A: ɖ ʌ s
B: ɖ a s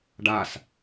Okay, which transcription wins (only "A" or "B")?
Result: B